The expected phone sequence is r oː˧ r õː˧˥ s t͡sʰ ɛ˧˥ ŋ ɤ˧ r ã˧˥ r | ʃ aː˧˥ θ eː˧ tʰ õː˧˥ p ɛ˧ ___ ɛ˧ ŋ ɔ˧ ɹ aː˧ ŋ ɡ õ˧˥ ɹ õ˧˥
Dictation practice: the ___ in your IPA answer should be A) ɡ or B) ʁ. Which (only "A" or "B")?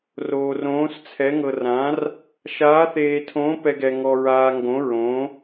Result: A